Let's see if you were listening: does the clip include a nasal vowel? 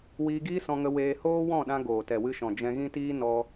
yes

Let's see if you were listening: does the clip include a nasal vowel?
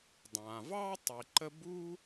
yes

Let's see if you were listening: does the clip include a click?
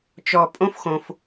no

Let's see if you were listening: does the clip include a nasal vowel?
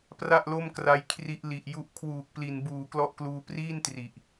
no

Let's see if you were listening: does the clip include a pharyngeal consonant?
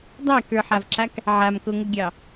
yes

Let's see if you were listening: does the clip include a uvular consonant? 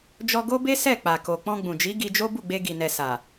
no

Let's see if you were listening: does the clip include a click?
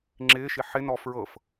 yes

